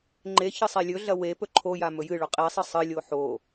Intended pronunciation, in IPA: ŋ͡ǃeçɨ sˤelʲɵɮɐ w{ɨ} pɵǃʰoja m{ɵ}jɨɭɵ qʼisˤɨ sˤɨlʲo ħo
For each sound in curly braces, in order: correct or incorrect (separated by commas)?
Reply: incorrect, correct